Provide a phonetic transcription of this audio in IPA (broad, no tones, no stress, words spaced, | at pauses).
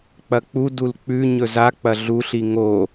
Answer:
k͡pɐk͡pu dulk͡pʉ ɲɵza k͡pɐɮuɬi ŋo